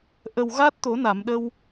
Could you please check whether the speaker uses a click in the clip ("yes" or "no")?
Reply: no